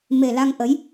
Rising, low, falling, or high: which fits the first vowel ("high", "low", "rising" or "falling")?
low